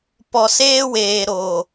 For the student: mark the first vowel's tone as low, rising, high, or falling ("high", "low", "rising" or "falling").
low